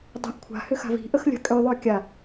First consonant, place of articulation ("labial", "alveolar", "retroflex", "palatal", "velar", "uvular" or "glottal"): alveolar